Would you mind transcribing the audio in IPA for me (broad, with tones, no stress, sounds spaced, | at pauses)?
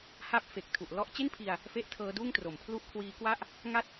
h a˥˩ p̚ f e˨˩ k̚ tʰ u˨˩ ʔ l ɔ˦˥ ʔ t͡ɕ e˥˩ n pʰ i˧ a̯ | f e˥˩ ʔ tʰ ɤː˦˥ d uː˥˩ ŋ t r o˩˦ m pʰ l u˥˩ ʔ kʰ w iː˦˥ k w a˥˩ ʔ | ŋ a˥˩ t̚